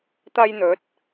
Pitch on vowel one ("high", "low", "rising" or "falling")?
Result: high